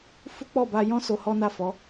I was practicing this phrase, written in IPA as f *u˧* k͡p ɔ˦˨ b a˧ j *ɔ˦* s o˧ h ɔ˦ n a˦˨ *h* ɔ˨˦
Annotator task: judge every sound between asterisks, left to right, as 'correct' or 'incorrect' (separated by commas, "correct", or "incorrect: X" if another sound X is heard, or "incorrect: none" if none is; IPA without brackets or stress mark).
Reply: incorrect: u˦, incorrect: ɔ̃˦, incorrect: f